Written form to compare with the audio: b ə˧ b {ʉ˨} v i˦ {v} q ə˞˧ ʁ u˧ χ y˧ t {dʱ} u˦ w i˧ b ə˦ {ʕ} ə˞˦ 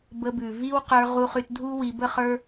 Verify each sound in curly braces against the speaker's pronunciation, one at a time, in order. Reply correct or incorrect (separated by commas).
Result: correct, incorrect, correct, incorrect